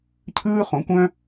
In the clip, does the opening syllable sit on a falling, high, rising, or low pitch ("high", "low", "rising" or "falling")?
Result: high